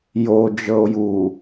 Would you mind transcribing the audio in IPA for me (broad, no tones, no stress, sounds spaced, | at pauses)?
j o d͡ʒ ɤ o̯ j u